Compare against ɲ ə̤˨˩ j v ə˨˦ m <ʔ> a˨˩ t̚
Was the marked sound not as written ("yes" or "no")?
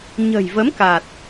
yes